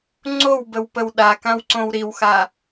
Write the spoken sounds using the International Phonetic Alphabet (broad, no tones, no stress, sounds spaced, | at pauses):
ŋ͡ǀ o w b ə w p ə w ɗ a k ã w ǀ õ w ɾ i w x a